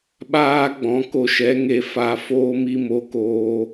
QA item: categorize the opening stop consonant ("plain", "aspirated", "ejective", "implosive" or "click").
implosive